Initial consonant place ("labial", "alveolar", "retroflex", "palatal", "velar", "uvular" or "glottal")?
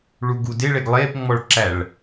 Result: retroflex